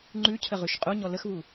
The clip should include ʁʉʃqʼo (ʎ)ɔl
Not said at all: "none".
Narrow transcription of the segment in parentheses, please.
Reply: ɲ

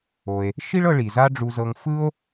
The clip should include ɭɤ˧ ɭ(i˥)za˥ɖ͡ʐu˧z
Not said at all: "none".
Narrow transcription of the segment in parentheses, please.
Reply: i˩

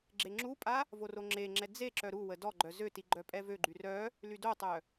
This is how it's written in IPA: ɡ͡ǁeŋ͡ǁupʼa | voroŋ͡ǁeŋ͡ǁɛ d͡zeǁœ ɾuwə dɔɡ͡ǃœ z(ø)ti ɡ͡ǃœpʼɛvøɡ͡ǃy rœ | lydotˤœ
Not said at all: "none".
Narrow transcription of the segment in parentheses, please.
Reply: ø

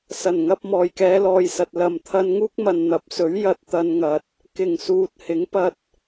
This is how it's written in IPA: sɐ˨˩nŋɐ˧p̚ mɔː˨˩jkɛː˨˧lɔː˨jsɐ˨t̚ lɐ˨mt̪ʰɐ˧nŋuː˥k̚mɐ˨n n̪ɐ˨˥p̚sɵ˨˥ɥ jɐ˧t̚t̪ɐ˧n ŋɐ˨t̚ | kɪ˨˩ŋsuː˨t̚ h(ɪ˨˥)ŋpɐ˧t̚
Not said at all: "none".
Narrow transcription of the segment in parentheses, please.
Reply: ɪ˨˥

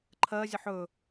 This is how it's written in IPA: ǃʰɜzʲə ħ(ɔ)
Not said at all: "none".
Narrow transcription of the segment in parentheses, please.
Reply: ɵ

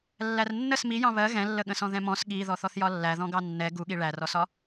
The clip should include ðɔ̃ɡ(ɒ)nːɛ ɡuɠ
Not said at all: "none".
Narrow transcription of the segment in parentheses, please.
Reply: ɑ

